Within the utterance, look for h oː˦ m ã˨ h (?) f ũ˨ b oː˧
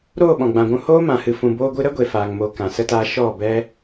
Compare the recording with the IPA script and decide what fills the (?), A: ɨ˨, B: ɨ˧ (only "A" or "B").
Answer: A